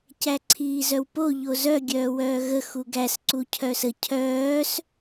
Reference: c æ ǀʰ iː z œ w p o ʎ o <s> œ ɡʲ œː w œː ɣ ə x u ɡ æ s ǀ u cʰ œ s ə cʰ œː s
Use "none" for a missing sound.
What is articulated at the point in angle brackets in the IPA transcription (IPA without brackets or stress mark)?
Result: z